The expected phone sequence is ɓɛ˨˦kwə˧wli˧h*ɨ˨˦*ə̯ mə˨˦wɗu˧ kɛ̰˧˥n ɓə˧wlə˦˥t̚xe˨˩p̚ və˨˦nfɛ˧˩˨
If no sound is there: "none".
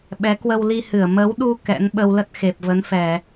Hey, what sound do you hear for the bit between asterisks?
ɨ˧˩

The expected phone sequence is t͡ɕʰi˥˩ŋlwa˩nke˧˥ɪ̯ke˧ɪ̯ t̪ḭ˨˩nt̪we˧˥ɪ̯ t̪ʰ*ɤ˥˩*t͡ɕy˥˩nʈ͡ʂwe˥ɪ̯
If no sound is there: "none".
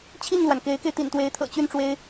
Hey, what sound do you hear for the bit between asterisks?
ɤ̰˨˩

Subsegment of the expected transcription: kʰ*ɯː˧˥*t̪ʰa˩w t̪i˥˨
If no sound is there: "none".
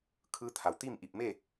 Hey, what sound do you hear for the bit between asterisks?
ɯː˧˥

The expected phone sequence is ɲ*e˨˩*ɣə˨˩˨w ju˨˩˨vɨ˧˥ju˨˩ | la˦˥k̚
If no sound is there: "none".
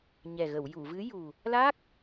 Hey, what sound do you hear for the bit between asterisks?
ɛ˨˩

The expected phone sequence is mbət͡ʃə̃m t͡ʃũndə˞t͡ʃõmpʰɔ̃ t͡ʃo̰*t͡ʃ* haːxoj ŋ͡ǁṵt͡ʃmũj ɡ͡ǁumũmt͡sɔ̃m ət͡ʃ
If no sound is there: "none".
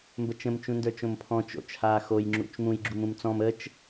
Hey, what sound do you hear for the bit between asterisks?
t͡ʃ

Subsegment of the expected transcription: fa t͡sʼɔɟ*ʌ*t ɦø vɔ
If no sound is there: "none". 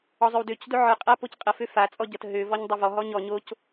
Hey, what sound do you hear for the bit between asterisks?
ʌ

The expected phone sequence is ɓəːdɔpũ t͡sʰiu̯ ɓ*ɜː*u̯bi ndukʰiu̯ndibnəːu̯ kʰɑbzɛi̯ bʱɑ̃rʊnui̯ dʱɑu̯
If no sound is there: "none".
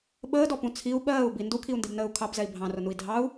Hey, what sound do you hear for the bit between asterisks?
ɜː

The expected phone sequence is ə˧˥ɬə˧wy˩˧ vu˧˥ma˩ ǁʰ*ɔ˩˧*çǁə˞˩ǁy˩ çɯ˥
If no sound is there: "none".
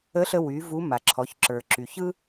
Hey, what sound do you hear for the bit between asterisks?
ɔ˩˧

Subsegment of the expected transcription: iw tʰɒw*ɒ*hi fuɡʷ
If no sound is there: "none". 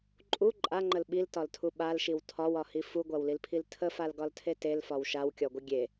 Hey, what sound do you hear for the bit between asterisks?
ɒ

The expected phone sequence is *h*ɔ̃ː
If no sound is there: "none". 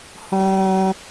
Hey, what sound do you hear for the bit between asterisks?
h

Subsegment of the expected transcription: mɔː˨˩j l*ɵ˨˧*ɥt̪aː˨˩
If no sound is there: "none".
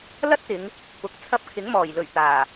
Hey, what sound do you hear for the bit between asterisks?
ɵ˨˩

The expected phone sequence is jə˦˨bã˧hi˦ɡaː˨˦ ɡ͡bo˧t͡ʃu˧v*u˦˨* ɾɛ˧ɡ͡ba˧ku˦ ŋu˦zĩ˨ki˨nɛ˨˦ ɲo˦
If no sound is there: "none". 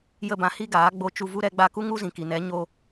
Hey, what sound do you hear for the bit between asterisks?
u˦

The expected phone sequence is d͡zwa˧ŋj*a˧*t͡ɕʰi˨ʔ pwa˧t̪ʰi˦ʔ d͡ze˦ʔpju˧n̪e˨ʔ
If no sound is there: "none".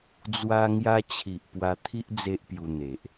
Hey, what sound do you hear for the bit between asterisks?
a˧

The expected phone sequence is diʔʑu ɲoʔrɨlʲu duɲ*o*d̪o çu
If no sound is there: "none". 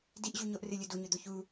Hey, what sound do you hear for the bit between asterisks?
ɵ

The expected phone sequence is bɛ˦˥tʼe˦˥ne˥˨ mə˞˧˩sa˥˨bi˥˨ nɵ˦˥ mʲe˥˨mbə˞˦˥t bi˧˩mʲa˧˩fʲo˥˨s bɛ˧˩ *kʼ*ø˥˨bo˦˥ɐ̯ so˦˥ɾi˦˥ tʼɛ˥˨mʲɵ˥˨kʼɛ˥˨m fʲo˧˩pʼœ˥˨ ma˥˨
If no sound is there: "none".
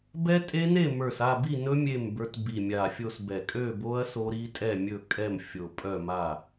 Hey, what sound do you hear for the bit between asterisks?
kʼ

